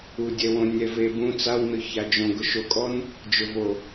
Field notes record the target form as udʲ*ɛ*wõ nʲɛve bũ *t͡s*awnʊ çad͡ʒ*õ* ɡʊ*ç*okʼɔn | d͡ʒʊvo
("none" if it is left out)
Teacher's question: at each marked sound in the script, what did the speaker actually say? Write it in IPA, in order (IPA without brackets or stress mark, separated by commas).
ɛ, t͡s, õ, ʃ